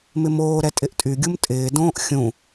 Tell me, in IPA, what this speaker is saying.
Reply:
m ɪ m oː ɾ ɛ tʼ ɪ ʔ tʼ y ɡʲ u m tʼ ɪː d õː ʔ xʲ ũ

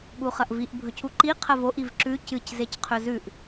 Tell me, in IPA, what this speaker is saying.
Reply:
ɓ u χ ɐ ʔ v i ʔ bʱ ɵ c u ǃ i qʰ ɐ v o ʔ i v ǁ ʉ c ɨ c z e c qʰ ɵ z ʉ ʔ

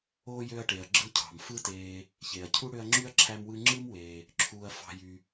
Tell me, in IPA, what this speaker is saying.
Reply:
oː˥ j ø˦ ɐ̯ ʈ e˩ ɐ̯ ɡ͡ǁ ɯ˥ cʰ ɑ̤˩ m f ɯ˦ t eː˨ | ç e˩ ɐ̯ cʰ u˥ ɽ ø˦ ɐ̯ ŋ͡ǁ y˥ ɐ̯ ǁʰ æ˥ m w ɯ˥ ŋ͡ǁ ɯ˥ m w eː˩ | ǁʰ uː˨ ɐ̯ f ɑ̤˨ j y˩

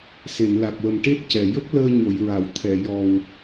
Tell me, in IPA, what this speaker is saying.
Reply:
s e˨˩˨ n l a˨˩ k̚ w ə˨˩ m ʈ e˦˥ t̚ c ɛ˨˩˨ j ə˦˥ k̚ l əː˧ ɲ o˨˩˨ j ɹ a˨˩˨ w t̪ʰ ɛ˨˩˨ j ɔ˨˩ w

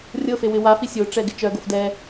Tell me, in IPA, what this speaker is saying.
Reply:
rʲ ɤ f e w ɪ w a f i sʲ o ʈ͡ʂ ɛ ɡ ɪ t͡ʃ œ ɡ o f d ɛ

